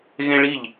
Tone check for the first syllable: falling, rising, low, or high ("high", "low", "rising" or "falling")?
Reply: high